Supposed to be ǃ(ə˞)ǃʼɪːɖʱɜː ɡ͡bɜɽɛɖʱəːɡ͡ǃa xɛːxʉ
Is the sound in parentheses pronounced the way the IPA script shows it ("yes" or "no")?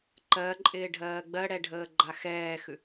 no